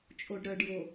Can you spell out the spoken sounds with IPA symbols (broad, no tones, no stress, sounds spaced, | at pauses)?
t͡ʃʼ o ɖ ɾ œ ɖ j o